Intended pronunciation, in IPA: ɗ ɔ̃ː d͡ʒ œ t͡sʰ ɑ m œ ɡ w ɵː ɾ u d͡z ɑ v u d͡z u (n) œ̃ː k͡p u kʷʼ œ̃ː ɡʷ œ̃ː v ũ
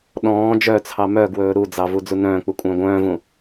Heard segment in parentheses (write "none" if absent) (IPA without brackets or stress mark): n